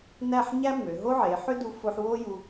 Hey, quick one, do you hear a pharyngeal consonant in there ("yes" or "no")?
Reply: yes